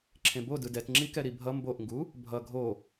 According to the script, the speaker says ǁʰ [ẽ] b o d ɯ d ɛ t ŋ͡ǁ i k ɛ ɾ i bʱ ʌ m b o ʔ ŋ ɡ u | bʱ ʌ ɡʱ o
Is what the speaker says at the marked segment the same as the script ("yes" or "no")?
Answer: yes